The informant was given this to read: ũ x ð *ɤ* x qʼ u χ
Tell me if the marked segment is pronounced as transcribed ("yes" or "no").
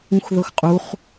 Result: yes